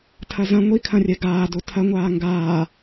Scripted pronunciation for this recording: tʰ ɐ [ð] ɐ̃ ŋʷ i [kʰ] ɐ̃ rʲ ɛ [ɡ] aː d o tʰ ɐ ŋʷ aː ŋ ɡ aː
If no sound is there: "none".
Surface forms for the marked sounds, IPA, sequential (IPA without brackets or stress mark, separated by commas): z, kʰ, ɡ